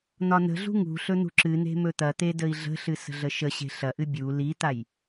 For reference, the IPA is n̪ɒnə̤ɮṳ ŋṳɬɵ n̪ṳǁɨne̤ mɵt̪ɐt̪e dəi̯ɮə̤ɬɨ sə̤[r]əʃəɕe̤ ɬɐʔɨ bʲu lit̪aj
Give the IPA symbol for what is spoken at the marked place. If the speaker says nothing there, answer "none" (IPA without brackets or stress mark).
ɮ